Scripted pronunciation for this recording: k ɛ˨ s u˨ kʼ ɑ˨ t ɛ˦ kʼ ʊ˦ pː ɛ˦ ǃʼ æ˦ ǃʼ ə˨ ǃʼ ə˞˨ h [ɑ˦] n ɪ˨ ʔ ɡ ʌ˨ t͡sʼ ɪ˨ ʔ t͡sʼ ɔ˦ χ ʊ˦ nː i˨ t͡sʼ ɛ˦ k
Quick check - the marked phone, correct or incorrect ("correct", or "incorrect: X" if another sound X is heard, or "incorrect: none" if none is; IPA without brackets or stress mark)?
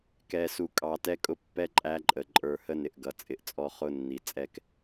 incorrect: ə˦